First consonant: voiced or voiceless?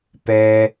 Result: voiceless